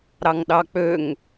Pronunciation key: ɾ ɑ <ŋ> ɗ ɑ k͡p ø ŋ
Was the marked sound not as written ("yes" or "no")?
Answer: no